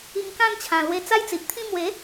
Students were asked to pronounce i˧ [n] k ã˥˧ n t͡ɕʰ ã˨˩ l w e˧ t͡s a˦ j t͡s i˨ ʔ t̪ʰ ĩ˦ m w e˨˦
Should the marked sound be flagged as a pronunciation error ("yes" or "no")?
yes